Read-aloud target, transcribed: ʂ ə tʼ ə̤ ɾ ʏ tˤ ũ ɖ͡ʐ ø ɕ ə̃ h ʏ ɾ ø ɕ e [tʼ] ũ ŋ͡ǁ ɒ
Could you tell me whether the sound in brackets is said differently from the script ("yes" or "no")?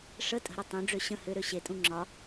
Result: no